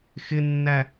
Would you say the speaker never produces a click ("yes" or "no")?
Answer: yes